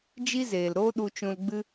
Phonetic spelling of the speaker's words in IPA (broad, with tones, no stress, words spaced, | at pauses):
d͡ʒi˦zeː˨lɾoː˦ ɗu˧t͡ʃũ˧lɡ͡bɨ˦